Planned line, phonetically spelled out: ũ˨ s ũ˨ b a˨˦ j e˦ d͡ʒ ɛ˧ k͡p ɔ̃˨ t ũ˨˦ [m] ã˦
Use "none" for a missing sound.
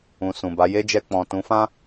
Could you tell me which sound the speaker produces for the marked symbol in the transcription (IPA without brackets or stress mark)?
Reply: f